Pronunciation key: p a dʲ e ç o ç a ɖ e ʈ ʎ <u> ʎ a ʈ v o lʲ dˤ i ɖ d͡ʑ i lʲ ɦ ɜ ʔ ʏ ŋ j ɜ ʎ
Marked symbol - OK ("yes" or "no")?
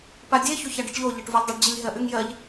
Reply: no